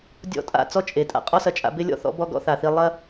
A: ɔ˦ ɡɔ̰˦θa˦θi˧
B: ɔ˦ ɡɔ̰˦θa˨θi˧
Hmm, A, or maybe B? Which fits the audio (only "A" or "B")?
B